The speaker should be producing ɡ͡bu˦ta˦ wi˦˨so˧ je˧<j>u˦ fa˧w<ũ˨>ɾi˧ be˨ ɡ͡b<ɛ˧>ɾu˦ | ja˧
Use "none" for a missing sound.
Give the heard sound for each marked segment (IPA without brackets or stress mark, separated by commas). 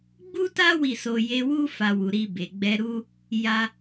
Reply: w, u˨, ɛ˧